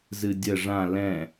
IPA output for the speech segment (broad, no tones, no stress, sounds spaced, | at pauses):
z ɨ dʲ ə ʐ ã l ɛ̃